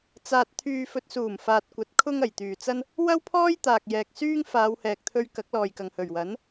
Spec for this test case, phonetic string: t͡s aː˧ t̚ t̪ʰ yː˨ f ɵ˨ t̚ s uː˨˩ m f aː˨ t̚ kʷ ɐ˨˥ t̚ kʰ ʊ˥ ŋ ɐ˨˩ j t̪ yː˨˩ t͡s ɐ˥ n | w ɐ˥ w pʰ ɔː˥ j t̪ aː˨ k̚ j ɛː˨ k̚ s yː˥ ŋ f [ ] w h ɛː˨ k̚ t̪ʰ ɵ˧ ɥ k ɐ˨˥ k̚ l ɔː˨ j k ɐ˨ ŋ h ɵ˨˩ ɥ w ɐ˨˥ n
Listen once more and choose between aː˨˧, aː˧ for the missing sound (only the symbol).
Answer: aː˨˧